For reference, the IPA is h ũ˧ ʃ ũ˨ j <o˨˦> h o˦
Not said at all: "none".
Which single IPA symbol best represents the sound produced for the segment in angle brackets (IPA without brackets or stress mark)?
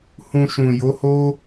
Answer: o˨˦